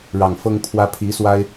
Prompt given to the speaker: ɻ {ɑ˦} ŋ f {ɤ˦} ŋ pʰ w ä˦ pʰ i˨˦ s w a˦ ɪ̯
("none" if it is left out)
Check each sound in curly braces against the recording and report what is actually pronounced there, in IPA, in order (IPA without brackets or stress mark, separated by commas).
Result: ɑ˨˩, ɤ˦